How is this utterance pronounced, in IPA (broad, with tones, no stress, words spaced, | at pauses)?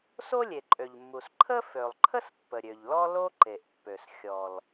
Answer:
so˥lʲe˩ǃʼø˩ʎmːu˩s ǃʰə˥ fø˩lˠǃʰə˥s pːə˩ɾʲø˩ʎlɔ˥ lo˥ ǃe˩ʔpːø˩s xʲɔ˩l